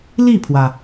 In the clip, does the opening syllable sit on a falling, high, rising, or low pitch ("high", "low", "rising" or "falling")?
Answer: falling